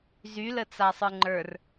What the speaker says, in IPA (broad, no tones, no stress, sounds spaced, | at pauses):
z y l ə t͡s a sˤ ə˞ ŋ͡ǃ ə˞ r